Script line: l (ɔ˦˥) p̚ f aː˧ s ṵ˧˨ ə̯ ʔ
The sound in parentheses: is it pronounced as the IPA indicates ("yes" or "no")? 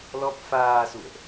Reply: yes